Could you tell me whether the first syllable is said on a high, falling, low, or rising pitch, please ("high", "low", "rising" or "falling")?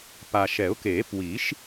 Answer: low